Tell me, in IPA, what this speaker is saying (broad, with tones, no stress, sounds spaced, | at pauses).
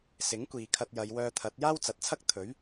s ɪ˨˥ ŋ kʷ iː˨ kʰ ɐ˧ t̚ j ɐ˨˧ j w œː˧ t̪ʰ ɐ˨˥ t̚ j aː˥ w t͡s ɐ˨ t̚ t͡sʰ ɐ˥ k̚ t̪ʰ ɵ˨˥ ɥ